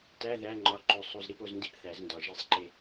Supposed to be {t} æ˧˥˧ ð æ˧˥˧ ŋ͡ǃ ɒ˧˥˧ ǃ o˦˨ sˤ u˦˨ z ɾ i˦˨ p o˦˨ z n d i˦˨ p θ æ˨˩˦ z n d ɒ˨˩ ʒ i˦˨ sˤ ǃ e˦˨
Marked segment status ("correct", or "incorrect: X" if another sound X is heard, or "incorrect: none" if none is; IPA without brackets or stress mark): correct